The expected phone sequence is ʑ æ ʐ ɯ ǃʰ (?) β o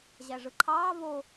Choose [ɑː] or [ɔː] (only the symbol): ɑː